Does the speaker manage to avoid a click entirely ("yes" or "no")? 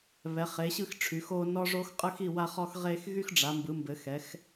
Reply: yes